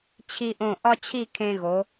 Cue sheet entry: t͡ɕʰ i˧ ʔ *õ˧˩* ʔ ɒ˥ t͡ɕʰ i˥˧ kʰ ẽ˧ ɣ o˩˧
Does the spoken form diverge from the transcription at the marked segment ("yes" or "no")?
no